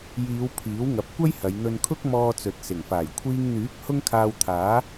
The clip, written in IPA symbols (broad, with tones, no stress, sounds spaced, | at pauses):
j iː˨˧ w pʰ iː˨˥ w ŋ ɐ˨˥ p̚ kʷ ɐ˥ j h ɐ˨˧ j n̪ ɵ˧ n kʰ ʊ˥ k̚ m ɔː˧ t͡s ɵ˨ t̚ s ɪ˨˩ ŋ f aː˨˩ j kʷʰ iː˧ ŋ n̪ yː˨˥ k̚ h ʊ˥ ŋ kʰ aː˧ w t̪ʰ aː˨˥